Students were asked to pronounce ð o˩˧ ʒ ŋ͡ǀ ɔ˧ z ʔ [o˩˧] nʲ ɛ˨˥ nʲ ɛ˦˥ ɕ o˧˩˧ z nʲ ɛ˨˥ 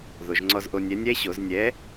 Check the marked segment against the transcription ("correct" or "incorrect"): incorrect